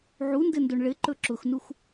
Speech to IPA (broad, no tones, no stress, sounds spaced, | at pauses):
ʕ u n d ɘ n d o ɳ ɭ ɘ ǃ ɵ ǁ ʊ x n u x